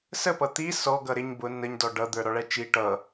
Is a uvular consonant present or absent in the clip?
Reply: absent